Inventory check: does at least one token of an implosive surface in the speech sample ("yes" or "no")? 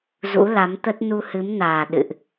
yes